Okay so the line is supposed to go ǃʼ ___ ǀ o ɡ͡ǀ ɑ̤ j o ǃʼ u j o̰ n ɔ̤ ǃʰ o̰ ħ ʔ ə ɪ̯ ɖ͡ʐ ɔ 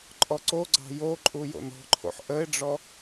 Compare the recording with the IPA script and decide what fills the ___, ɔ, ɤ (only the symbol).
ɔ